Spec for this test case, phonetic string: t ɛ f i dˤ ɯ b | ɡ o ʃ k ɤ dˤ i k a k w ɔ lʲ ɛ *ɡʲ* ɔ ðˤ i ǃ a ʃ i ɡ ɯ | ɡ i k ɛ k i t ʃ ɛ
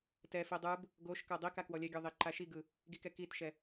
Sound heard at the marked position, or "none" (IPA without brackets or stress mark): ɡʲ